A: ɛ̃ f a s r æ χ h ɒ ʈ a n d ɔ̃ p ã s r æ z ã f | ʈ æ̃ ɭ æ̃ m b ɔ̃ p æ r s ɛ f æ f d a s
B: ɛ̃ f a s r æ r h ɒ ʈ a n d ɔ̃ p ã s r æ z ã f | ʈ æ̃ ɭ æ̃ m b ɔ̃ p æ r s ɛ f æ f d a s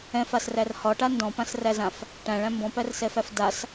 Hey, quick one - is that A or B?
B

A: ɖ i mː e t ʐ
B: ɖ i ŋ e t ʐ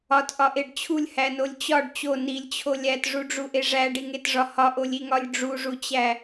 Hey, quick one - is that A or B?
B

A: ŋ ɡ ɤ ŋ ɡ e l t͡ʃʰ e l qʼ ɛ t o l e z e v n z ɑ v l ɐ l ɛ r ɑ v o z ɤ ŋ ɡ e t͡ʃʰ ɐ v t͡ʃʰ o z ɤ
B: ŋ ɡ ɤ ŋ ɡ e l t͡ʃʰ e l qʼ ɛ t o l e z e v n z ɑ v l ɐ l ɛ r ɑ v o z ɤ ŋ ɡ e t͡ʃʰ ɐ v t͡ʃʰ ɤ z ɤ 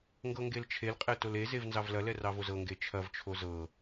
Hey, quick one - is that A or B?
A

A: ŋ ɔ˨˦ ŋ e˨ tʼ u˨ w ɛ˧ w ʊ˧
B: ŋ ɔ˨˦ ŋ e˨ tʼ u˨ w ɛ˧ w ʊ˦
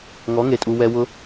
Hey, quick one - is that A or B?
A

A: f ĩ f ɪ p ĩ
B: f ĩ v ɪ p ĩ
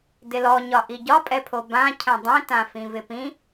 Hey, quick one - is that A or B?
B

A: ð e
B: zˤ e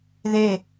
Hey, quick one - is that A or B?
A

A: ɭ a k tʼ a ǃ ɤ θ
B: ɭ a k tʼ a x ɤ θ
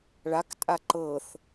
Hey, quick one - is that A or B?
A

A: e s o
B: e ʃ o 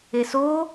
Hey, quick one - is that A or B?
A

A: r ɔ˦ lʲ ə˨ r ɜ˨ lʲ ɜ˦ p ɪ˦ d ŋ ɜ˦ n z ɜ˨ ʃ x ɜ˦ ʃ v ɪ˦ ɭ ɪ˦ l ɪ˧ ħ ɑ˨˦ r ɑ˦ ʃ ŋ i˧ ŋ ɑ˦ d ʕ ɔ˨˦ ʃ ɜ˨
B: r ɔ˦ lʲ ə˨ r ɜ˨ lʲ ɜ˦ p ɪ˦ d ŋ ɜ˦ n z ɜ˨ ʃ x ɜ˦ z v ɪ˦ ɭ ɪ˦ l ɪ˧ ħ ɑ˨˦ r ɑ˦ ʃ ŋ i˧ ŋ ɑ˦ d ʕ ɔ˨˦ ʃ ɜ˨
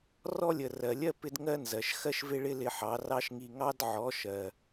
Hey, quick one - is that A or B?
A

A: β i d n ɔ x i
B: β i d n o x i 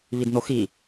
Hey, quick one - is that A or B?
B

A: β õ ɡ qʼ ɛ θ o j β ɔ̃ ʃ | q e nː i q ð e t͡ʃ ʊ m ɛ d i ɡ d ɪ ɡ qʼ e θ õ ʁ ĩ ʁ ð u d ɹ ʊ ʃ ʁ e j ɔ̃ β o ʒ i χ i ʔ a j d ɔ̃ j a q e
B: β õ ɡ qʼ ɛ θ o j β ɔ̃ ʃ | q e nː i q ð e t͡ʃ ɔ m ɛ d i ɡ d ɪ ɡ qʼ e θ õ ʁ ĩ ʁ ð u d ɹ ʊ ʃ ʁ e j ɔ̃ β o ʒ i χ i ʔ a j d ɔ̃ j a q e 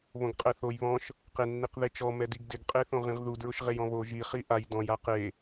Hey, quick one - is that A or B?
B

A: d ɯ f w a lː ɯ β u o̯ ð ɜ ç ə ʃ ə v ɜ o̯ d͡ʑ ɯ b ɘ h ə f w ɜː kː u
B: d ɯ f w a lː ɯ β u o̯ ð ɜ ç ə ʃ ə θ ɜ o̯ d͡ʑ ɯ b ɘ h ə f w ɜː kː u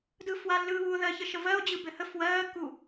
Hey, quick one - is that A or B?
A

